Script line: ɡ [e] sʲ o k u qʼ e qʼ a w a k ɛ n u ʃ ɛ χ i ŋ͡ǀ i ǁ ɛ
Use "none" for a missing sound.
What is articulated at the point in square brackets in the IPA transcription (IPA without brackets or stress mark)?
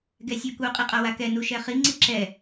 ɛ